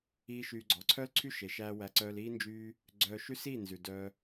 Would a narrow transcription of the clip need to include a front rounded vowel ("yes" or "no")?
yes